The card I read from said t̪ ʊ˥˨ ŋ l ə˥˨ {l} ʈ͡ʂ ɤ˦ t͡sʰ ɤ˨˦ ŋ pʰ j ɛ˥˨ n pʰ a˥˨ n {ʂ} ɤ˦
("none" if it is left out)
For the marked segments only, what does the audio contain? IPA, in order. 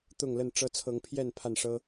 n, ʂ

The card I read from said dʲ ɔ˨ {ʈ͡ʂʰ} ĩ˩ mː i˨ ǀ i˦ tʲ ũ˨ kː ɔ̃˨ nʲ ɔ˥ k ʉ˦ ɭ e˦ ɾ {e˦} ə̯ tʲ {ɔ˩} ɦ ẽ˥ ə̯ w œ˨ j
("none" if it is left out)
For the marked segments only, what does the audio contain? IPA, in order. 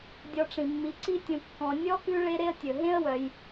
ʈ͡ʂ, e˦, ɵ˩

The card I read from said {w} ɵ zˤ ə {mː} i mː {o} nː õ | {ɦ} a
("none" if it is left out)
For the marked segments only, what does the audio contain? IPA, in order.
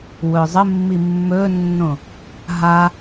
w, mː, ɵ, ɦ

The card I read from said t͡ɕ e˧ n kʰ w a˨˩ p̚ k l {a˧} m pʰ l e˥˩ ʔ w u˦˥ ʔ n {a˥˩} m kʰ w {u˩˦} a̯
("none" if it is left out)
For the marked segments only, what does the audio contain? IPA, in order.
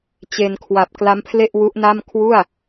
a˦˥, a˥˩, u˥˩

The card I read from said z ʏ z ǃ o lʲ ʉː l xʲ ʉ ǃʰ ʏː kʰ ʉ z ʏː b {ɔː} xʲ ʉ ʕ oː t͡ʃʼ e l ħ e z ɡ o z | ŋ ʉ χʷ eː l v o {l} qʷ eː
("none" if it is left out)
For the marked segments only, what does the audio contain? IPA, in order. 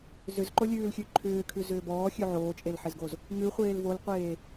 ɔː, l

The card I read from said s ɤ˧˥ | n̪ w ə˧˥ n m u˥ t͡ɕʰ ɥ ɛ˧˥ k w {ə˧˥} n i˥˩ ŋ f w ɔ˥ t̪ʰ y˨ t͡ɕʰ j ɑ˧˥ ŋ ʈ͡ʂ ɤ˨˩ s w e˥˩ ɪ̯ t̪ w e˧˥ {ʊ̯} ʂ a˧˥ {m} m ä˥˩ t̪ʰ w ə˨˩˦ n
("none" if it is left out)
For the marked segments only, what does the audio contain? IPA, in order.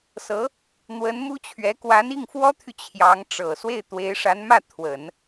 a˧˥, ɪ̯, n

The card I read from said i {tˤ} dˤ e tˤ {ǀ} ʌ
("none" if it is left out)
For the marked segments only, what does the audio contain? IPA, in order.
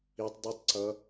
tˤ, ǀ

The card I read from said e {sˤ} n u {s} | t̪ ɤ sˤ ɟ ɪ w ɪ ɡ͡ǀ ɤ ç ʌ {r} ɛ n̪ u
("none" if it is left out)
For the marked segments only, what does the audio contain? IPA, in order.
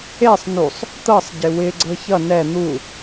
sˤ, sˤ, n

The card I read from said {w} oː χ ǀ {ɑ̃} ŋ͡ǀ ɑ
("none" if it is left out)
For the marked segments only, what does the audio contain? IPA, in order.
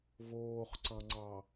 v, ɑ̃

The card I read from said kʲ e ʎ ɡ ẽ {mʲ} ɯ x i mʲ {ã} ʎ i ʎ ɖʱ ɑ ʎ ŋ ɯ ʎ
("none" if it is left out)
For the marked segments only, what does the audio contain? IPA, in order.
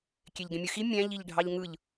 mʲ, æ̃

